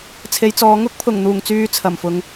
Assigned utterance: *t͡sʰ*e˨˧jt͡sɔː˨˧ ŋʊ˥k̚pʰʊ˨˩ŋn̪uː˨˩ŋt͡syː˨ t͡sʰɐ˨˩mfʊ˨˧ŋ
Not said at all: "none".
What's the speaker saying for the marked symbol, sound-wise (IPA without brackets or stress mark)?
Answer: t͡sʰ